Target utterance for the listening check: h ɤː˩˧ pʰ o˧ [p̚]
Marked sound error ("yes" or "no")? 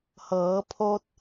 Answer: yes